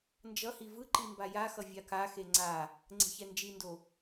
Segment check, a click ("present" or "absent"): present